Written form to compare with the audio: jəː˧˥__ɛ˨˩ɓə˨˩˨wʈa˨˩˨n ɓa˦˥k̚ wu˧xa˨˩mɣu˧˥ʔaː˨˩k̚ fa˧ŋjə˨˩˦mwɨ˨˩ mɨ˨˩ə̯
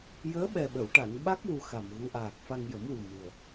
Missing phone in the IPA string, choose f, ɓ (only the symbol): ɓ